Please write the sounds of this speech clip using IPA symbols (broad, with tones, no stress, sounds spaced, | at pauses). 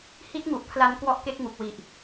h i˦˥ t̚ ŋ u˨˩ ʔ pʰ l a˧ n k w ɔ˦˥ ʔ k e˦˥ k̚ ŋ u˨˩ k̚ w i˨˩ ʔ